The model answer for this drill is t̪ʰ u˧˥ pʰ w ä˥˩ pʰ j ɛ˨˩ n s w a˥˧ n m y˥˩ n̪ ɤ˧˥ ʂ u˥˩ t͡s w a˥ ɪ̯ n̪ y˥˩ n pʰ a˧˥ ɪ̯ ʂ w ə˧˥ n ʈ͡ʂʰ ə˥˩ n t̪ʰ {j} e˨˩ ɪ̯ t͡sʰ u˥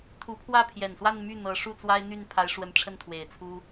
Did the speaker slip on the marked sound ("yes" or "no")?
yes